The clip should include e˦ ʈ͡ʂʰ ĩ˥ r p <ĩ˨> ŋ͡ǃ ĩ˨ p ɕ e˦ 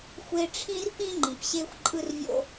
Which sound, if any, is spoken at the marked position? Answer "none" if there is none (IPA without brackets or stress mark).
ĩ˥